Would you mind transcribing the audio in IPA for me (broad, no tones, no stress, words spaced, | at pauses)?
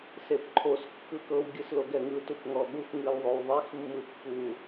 sepǃʰos kːɯkɤw ɡʲɯsloɡɛŋɯ tupŋɔɠux ŋɯlðˤowðˤix mːɯpːu